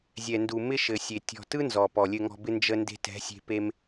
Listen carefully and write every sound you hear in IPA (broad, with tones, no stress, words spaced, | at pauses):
zʲɛ˨ndu˨ mɪ˦ʃɘ˨sʲe˨ tʲɔ̤˨tɯ˦ nzɔ˨pɔ˨ lʲɘ˨ŋɔ̤˨bɪ˧ nd͡ʒə˧nde̤˧tɛ̤˨˦sʲe̤˧ pe˧m